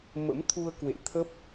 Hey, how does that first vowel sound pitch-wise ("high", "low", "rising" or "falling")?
rising